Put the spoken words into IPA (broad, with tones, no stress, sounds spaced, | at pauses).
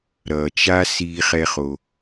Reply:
ɾ ʌ˩ t͡ʃ a˥ s iː˥ χ ɛ˥ χ o˨